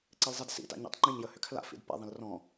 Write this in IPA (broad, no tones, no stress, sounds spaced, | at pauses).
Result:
ǀ e l zˤ ɛ d s ḭ t a̰ ɲ ɛ̰ tˤ ŋ͡ǃ ĩ ɲ j ə h ʏ kʰ l a̰ f ḭ d p ɛ̰ ðˤ ə̃ l r ɔ̃